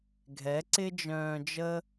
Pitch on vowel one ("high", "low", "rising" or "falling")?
rising